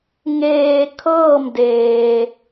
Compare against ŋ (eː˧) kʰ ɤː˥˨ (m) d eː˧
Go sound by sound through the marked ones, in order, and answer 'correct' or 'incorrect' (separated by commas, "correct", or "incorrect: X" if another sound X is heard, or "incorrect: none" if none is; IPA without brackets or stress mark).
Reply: correct, correct